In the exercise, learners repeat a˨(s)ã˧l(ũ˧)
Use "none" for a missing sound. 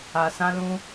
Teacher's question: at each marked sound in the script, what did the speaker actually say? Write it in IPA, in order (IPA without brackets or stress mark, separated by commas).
s, ũ˧